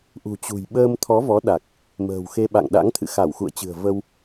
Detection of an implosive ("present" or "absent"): present